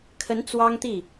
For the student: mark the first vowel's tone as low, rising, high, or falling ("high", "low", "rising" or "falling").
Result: rising